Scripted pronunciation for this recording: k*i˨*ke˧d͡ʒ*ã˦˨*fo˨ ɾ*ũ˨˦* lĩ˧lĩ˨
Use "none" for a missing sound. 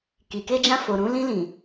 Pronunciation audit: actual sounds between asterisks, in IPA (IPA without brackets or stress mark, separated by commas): i˨, ã˧, ũ˨˦